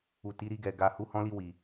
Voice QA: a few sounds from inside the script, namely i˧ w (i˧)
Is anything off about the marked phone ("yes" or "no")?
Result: yes